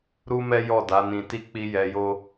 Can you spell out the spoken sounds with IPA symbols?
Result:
ɾ u˦ m ɛ˦ j ɔ˦˨ d a˨˦ n ĩ˧ t i˦ k͡p i˧ j ɛ˧ j o˦

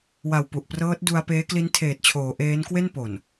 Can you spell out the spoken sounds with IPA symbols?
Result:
w a˨˩ w p u˨˩ ʔ p r ɤː˦˥ t̚ d u˧ a̯ p eː˦˥ k l i˦˥ n tʰ eː˨˩ t̚ t͡ɕʰ oː˩˦ ʔ eː˦˥ n k w e˥˩ n p o˨˩ n

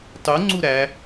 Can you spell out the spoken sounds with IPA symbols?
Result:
tˤ u ŋ͡ǀ u ɾ æ

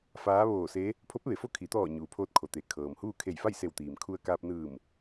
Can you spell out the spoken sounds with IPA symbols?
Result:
f aː˧˥ ʋ oː˧˩ s e˧˥ | pʰ o˧˥ p̚ ʋ e˩ f o˥˨ kʰ i˩˧ t̪ ɔː˧˩ ɲ uː˩ pʰ oː˧ t̚ kʰ o˩ t̪ e˩ kʰ ɤː˩ m h uː˥˨ kʰ e˧˩ j f a˥˨ j s e˧˩ w t̪ iː˩ m kʰ u˧ ə̯ k aː˧ p̚ n ɯː˧˩ m

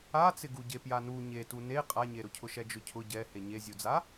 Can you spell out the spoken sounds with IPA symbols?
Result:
a t͡s ɪ ɡ u ɟ e p j a n u ɲ e t u n e qʼ a ɲ e ɾ ʊ cʰ ʊ ʃ ɛ d͡ʒ ʊ cʰ ʊ ɟ ɛ h e ɲ e zʲ u d͡z a

